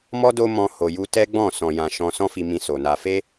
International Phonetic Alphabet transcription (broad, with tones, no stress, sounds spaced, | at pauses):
m ɔ˦ d o˦ m ɔ̃˧ h o˨ j u˧ t ɛ˦ ɡ͡b ɔ̃˦˨ s ɔ̃˧ j ã˧ ʃ ɔ̃˦ s ɔ̃˦ f i˧ m ĩ˧ s o˨ n a˧ f e˦